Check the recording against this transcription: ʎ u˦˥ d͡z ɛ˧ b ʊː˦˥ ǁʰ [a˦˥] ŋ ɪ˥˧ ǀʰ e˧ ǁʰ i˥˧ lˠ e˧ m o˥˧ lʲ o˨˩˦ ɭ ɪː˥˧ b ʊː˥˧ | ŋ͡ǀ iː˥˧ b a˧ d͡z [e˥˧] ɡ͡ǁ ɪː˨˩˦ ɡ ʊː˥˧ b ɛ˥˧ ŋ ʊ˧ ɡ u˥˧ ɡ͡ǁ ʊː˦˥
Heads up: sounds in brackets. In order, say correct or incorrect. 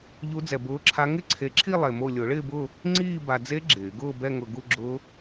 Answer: correct, incorrect: e˦˥

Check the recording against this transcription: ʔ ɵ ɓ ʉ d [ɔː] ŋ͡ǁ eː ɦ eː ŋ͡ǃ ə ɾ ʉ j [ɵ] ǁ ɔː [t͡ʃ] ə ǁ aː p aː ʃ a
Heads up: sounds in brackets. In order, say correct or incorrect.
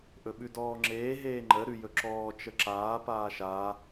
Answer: correct, correct, correct

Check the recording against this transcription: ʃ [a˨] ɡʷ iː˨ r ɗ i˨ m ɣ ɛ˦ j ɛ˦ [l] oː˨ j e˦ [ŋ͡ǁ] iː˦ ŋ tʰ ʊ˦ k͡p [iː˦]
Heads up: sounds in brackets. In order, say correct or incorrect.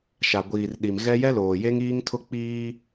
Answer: correct, correct, incorrect: ŋ, correct

